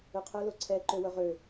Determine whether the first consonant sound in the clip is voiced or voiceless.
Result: voiceless